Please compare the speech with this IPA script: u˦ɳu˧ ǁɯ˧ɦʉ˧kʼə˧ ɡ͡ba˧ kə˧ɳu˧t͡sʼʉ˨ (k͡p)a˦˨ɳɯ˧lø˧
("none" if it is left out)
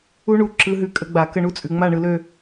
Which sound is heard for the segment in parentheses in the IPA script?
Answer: ŋ͡m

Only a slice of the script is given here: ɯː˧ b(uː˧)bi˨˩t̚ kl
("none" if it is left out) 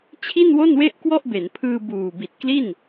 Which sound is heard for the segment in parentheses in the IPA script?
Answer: uː˨˩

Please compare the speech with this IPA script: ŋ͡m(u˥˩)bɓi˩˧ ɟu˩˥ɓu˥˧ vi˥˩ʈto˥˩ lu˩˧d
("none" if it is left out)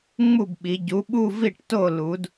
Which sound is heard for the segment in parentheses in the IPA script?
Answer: u˥˩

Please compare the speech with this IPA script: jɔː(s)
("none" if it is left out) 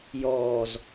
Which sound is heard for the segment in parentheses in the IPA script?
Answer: z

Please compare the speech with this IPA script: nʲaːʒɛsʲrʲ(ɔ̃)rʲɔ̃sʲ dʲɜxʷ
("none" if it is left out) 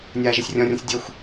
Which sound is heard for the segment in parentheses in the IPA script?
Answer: ɔ̃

